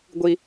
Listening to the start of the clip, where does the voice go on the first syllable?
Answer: low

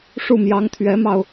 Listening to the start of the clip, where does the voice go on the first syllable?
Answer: falling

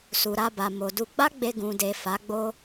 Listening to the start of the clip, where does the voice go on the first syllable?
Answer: low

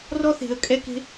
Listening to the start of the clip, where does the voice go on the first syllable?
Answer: high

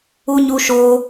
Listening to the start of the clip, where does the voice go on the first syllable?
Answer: high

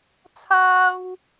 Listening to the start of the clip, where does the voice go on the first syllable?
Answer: high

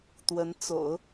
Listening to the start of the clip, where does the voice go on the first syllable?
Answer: rising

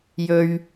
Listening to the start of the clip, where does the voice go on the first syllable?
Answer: high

